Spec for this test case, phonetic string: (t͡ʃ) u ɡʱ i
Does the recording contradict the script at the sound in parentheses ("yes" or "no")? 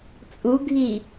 yes